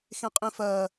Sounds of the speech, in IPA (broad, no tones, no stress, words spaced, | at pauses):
xẽqʼĩfɜː